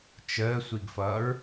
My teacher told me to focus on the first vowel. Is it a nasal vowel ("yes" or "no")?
no